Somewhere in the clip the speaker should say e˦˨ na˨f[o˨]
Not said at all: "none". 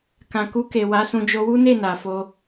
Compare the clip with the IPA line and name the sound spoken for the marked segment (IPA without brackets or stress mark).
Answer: o˧